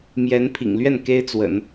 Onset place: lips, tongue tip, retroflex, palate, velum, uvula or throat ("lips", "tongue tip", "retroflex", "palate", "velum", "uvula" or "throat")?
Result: lips